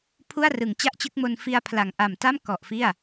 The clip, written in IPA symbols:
pʰu˥˩a̯rɯ˩˦ŋt͡ɕa˥˩ʔt͡ɕɯ˦˥k̚ mo˧nfi˧a̯pʰla˨˩ŋ ʔa˨˩mta˥˩m kɔ˨˩ʔfi˥˩a̯

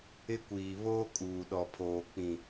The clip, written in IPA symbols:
ɪ˦kʷiː˨ βoː˦kʼuː˨ɗɔ˨pʰoː˨ k͡pĩ˨

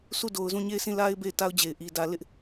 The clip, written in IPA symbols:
sʰu˦˨do˨ʊ̯zũ˦˨ ɲe˦˨ɪ̯sʰĩ˦˨la˦ɪ̯ be˦˨ɪ̯ta˦ʊ̯d͡ʑe˨ɪ̯ʔi˨ dä˨lɪ˦ʔ

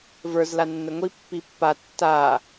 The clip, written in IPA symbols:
və˞z lanːəŋʷi pːipːa tːa

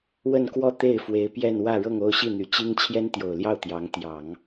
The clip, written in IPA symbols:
wə˥˧nkwɔ˥˧ t̪e˥˩ɪ̯ fwe˧˥ɪ̯pjɛ˥˧n wä˥˧ɻɤ˥˧ŋo˥˧ʊ̯ ɕi˥˩n̪y˨˩t͡ɕi˥ŋ t͡ɕʰjɛ˥nt̪jo˨˩ʊ̯ljɑ˥˩ʊ̯ t̪jɑ˧˥ŋ t̪jɑ˨˩˦ŋ

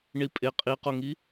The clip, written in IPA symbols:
ɳipʼe qʼiqoŋi

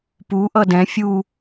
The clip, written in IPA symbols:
puʔʌ dɛ̃ fʲu

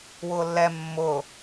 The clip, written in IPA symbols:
wʊːlːɛ mːʊː

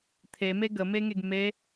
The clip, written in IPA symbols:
t̪ʰeme ɡəmeŋeɡ me

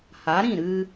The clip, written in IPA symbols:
ha˨˦ɾĩ˦˨ ɾɨ˧

